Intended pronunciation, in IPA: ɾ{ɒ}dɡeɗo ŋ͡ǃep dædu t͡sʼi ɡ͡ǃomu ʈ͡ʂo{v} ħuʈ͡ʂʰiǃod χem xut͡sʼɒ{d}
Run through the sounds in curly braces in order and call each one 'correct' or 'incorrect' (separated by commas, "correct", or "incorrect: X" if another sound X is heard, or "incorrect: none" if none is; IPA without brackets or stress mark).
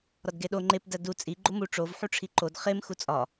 correct, correct, incorrect: none